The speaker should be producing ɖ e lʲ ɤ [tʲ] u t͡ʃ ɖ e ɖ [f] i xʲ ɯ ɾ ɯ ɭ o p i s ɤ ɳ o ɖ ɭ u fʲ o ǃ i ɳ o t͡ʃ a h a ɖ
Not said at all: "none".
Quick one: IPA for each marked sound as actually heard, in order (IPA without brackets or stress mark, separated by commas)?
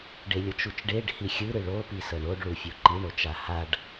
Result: t͡ʃ, h